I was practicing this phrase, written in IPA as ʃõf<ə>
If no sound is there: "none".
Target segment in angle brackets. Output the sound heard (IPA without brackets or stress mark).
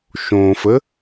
ə